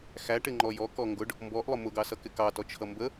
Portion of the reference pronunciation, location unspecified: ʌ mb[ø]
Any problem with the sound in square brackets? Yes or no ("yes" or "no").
yes